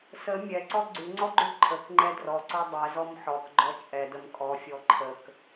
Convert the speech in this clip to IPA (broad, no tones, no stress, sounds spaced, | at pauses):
s ə mʲ ɛ ǀ ɔ ɡ͡ǀ ʉ ŋ͡ǀ ɔ ɡ͡ǃ ʉ ǃʰ ə k ŋ͡ǃ ɛ d r ɔ ǀ ɔ dˤ ɛ z ɔ m ħ ɔ k ɡ͡ǃ ɔ t͡ʃʼ ɛ d ə m kʼ ɔ fʲ ɔ ǃʰ ə k